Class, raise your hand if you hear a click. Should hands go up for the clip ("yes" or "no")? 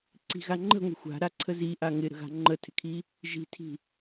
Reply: yes